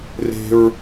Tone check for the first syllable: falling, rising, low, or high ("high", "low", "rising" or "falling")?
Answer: high